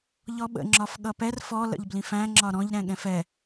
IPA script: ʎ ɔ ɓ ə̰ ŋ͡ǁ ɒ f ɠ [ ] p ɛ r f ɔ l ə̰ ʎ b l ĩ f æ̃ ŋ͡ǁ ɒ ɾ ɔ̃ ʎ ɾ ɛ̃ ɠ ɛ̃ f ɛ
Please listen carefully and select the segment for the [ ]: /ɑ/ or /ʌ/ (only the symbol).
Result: ʌ